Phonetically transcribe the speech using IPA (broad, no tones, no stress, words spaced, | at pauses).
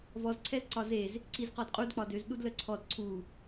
vɔz ǀʰɛzǀɒzez | ǀizqɔdqʼud k͡pɒdøz ɗudləǀʰɔd ǀʰu